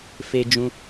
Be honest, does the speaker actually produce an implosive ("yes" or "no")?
no